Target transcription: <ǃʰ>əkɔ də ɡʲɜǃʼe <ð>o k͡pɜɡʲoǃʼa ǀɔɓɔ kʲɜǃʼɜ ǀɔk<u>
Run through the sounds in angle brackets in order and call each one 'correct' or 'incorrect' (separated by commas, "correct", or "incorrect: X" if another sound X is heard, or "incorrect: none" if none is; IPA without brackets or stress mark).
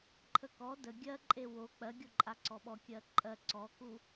correct, incorrect: w, correct